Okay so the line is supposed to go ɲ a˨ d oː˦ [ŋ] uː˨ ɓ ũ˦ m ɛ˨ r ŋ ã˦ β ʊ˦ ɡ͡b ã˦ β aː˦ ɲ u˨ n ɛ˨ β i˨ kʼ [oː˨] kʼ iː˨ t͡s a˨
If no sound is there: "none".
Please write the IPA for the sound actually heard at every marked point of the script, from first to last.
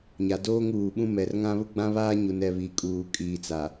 ŋ, uː˨

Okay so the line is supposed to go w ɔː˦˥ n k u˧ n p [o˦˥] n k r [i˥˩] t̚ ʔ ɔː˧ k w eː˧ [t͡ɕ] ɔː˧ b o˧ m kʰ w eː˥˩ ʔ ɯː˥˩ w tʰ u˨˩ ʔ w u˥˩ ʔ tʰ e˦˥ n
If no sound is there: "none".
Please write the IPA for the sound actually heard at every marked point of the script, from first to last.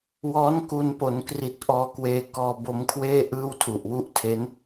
o˩˦, i˨˩, k

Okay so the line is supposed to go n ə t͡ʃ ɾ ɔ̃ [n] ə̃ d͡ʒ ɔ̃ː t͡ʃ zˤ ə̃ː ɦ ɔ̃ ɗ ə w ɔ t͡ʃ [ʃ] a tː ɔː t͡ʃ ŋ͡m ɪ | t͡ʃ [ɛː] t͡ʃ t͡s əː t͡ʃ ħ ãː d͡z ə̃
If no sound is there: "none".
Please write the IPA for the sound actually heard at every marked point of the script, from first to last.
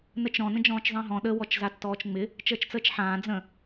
n, z, əː

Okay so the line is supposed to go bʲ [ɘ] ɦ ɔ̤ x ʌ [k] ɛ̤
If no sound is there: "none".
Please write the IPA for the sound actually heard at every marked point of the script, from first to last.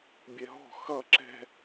ɛ, ǁ

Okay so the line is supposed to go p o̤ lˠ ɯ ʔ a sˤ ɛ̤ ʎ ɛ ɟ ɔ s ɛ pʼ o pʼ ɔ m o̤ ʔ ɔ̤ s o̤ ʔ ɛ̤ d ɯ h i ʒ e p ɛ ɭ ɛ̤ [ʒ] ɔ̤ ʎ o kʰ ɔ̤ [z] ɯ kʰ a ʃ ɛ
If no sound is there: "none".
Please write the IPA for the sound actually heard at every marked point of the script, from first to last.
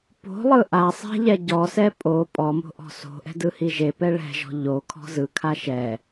ʒ, z

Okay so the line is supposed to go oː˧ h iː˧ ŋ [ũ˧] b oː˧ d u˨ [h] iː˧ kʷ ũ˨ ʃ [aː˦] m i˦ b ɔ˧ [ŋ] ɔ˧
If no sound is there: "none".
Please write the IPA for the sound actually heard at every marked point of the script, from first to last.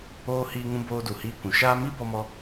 ũ˧, h, aː˦, m

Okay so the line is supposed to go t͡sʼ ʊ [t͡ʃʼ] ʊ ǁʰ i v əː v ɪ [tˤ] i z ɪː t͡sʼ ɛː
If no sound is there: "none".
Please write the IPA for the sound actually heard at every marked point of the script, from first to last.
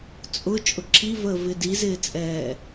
t͡ʃʼ, d

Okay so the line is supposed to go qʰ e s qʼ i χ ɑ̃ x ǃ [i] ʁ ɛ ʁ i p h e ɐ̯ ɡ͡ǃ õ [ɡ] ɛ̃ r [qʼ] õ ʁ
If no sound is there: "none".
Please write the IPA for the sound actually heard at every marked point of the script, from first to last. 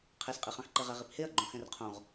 e, x, qʰ

